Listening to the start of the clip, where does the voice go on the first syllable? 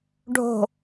low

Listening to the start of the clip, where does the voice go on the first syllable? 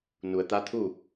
low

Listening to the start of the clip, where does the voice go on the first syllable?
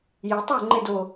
rising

